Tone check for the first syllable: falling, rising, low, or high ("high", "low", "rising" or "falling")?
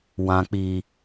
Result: low